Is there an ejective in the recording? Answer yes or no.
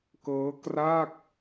no